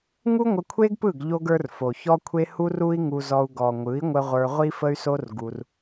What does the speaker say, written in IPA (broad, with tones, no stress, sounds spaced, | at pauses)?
ŋ u˦ ŋʷ ə˧ kʷʰ e˦ ɡ p ɯ˦˨ ɡ ʎ o˦ ɡ ə˞˦ r f o˨ ç ɔ˦ kʷʰ e˦ h u˦ r u˦ i̯ ŋ u˧ z ɔ˧ u̯ ɡ ɔ˨ ŋʷ ɯ˨˦ i̯ ŋʷ ə˧ ʁʷ ə˞˧ ʁʷ i˦ f ə˦ y̯ s o˦ r ɡ u˧ r